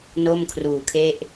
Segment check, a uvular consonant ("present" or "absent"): absent